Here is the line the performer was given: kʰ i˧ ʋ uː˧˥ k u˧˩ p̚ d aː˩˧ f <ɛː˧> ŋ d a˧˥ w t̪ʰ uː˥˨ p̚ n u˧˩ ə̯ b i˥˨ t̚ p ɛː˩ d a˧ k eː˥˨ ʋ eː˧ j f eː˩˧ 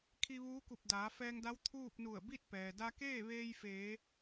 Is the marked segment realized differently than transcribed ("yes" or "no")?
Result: no